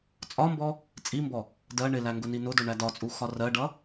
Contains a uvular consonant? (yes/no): no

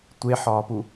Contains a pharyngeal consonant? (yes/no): yes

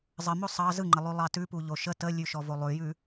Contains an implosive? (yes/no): no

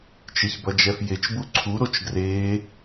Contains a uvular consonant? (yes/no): no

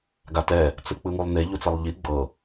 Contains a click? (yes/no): no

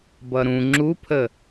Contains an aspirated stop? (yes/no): yes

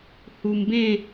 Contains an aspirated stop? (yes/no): no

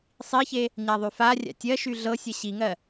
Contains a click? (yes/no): no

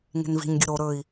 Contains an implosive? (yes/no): no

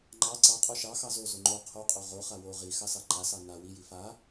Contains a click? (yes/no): yes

